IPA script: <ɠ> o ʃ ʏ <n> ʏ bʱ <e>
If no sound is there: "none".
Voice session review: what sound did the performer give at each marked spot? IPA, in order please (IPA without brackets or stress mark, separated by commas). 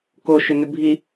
k, n, i